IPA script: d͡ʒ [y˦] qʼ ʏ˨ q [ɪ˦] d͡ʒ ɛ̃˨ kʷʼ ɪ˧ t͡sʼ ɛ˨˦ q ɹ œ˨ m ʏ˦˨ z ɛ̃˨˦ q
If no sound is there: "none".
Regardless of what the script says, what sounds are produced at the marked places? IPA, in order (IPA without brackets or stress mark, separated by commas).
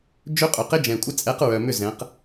ø˦, ɪ˦